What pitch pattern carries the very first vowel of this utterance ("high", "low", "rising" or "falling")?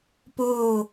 falling